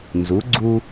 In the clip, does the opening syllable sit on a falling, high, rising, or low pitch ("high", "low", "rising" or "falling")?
rising